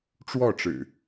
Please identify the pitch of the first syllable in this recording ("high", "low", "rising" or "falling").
falling